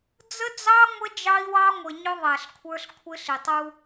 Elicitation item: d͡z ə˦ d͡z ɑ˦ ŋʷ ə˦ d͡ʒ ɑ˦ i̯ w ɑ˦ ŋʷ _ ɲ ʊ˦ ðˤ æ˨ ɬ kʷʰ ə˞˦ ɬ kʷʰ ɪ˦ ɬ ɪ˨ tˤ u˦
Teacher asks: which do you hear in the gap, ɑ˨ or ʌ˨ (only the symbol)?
ʌ˨